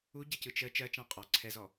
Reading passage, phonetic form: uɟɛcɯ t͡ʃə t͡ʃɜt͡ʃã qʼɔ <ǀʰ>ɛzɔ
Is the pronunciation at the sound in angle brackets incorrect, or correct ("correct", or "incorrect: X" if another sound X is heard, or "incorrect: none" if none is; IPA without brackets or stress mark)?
correct